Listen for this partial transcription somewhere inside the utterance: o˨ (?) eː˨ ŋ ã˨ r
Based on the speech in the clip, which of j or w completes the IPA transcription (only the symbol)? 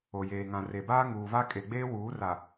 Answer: j